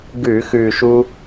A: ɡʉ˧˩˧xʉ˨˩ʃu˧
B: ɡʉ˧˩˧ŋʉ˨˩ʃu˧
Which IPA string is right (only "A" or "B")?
A